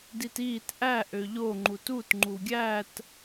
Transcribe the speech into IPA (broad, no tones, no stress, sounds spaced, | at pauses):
d i t iː t ʔ æ ʔ ø ʎ o ŋ͡ǃ u t u t ŋ͡ǃ u ɡʲ æ t